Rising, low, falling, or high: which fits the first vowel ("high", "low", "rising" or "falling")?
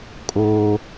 high